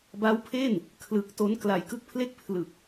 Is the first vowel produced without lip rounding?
yes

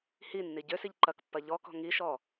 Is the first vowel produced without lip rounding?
yes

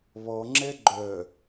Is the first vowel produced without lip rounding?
no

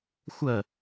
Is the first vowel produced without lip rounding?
yes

